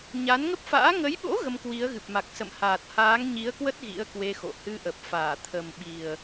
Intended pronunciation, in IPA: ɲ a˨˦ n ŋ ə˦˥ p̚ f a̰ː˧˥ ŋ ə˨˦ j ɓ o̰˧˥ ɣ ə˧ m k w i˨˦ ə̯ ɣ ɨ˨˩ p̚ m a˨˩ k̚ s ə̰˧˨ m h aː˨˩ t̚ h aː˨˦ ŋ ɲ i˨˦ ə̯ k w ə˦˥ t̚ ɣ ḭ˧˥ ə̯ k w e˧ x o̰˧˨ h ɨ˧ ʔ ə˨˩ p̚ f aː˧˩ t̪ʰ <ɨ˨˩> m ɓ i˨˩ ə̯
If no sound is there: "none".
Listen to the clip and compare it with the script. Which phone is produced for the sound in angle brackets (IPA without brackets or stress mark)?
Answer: ə˨˩